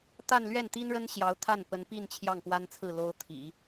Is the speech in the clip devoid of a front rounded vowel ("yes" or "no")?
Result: yes